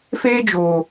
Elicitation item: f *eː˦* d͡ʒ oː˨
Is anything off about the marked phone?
no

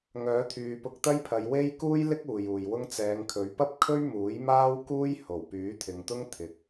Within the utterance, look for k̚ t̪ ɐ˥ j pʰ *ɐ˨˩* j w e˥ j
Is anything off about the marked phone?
yes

